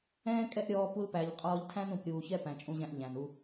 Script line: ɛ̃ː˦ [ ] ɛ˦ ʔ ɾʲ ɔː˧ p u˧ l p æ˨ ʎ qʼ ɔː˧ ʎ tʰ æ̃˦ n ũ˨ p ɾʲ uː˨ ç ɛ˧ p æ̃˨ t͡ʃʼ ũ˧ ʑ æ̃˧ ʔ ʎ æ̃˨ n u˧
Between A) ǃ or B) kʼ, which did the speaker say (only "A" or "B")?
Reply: B